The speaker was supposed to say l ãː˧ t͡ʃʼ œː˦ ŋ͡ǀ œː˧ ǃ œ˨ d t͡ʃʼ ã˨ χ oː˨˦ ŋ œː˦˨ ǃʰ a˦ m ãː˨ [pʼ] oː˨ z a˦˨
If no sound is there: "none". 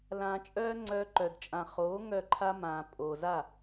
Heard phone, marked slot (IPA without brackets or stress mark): pʼ